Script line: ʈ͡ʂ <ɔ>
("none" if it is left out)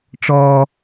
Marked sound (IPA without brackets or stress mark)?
ɔ